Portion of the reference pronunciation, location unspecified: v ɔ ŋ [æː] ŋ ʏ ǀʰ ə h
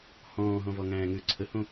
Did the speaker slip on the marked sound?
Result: yes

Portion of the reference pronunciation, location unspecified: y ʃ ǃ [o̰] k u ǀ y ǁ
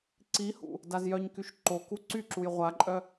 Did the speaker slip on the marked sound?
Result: yes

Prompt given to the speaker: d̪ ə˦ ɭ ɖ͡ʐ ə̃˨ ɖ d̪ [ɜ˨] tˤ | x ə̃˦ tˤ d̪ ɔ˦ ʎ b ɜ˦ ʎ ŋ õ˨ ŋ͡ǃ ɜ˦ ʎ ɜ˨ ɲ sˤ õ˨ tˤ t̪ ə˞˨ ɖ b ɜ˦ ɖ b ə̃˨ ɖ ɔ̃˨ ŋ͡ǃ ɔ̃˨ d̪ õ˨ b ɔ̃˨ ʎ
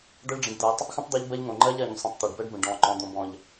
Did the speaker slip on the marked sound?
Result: no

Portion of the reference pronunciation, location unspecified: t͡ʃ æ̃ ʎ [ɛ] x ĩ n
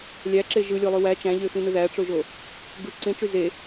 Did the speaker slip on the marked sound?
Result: yes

